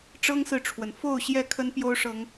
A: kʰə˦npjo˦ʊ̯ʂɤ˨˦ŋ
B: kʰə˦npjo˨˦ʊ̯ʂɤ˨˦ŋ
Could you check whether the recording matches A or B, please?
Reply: A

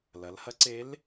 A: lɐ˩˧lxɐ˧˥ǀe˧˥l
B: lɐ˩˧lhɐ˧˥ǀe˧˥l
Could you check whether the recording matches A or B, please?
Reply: B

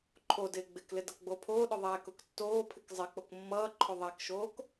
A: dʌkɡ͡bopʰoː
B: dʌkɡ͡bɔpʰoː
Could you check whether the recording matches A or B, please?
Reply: A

